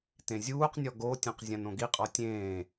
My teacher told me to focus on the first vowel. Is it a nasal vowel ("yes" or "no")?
yes